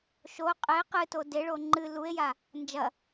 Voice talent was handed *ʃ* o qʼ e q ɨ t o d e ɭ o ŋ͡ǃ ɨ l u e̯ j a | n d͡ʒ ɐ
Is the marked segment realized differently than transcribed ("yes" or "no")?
no